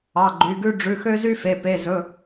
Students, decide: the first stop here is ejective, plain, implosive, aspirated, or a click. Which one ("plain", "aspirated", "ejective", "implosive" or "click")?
click